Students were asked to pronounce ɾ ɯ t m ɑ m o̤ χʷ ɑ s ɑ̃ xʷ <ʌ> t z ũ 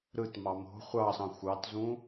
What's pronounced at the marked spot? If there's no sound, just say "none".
ɑ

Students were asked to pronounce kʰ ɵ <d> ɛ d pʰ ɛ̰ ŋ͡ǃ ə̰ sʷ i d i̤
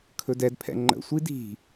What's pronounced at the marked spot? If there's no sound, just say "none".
d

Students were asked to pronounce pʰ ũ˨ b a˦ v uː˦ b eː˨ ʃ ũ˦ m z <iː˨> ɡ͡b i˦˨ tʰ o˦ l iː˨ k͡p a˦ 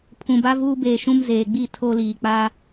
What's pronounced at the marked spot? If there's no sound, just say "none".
eː˨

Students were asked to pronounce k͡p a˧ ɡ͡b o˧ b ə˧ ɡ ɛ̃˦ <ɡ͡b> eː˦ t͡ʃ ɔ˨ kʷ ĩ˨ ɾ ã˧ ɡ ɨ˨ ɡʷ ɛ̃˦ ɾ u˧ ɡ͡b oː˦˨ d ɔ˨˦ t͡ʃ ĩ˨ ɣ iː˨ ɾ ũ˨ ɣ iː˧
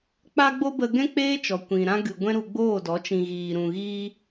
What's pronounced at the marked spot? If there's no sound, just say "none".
k͡p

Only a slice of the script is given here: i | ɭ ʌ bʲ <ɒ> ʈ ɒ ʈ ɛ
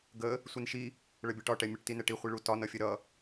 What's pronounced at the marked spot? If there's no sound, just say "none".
ɒ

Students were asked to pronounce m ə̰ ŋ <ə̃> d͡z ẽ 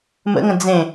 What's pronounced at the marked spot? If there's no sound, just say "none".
ə̃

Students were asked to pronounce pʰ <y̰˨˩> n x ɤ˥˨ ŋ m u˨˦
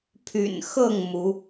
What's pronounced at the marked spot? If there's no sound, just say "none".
y̰˨˩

